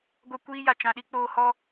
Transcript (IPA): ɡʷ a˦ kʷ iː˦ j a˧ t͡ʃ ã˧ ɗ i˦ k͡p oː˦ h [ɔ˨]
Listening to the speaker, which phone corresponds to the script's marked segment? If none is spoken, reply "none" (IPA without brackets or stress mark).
ɔ˦